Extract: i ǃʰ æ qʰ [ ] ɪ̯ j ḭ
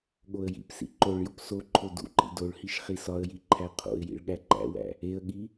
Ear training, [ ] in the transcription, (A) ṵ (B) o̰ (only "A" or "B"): B